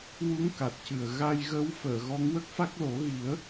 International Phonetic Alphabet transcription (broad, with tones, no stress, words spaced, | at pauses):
wu˧˥ŋ ka˨˩t̚cɨ˨˩ə̯ ɣa˧jɣə˧˥w fəː˨˩˨ɣɔ˧˥ŋ wə˦˥k̚fa˦˥k̚lo˨˩˦ ɣi˨˩˦ə̯